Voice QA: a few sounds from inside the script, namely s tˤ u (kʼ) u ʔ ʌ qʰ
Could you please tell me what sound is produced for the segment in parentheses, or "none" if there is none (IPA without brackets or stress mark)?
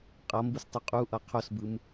qʼ